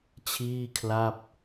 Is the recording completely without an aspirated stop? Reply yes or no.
no